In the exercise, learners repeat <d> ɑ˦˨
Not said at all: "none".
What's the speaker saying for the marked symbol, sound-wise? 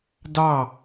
d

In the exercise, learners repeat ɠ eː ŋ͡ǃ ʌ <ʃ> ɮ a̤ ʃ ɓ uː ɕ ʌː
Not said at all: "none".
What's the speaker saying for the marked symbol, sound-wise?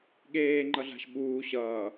none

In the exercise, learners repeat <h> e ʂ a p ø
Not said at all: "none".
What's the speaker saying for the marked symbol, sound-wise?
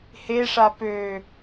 h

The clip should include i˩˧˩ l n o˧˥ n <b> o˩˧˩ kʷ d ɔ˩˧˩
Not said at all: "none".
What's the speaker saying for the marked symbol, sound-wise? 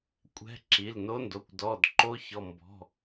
d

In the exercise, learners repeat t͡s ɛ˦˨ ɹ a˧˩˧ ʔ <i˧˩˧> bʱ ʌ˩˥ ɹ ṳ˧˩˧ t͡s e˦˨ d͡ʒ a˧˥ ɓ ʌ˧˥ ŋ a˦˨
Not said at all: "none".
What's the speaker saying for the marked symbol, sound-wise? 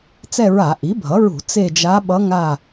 i˩˥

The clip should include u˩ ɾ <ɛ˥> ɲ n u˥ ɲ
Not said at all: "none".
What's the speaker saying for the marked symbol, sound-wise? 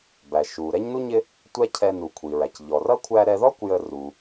ɛ˥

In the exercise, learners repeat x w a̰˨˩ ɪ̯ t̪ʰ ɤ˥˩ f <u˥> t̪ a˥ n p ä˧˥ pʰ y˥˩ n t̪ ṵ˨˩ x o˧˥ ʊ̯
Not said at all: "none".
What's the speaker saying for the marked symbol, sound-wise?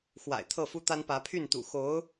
u˥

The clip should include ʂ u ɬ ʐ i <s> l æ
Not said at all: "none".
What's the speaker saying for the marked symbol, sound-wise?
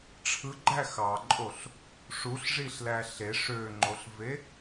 ɬ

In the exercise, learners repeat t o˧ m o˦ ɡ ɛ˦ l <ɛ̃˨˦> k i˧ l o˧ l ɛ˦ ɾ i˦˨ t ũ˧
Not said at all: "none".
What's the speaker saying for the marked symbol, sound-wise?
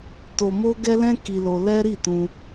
ɛ̃˦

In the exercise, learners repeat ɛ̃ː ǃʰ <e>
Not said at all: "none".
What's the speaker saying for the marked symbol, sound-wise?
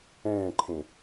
ẽ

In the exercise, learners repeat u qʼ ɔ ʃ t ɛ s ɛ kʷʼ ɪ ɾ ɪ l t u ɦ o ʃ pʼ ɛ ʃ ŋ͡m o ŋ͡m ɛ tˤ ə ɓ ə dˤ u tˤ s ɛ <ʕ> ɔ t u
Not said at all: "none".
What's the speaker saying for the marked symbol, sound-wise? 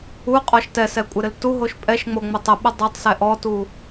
ʔ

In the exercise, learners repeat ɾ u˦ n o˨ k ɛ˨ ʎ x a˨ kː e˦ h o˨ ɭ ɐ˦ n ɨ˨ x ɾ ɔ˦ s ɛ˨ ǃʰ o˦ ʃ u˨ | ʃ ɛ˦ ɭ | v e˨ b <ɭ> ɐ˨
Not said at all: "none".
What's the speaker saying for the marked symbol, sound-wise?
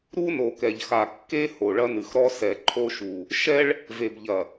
ʎ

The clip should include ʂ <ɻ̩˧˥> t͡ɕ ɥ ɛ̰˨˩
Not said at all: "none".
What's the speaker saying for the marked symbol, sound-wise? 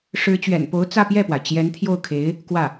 ɻ̩˧˥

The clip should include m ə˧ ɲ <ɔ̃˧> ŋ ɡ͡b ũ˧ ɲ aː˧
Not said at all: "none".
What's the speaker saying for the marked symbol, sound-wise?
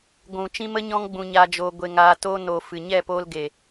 ɔ̃˧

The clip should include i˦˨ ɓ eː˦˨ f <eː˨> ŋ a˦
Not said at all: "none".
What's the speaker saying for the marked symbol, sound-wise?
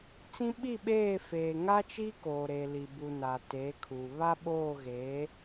eː˨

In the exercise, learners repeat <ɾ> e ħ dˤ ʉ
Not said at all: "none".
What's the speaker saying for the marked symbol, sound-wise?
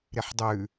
ɾ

